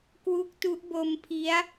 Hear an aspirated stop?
yes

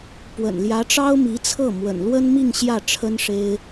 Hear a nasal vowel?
no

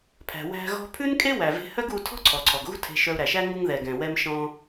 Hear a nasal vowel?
yes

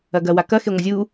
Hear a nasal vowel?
no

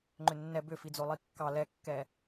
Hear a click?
yes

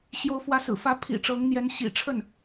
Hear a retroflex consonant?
yes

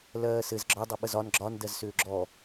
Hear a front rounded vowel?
yes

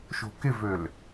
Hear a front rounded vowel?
yes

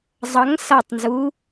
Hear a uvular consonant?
no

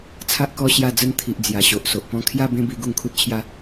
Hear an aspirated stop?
yes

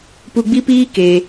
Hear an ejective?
no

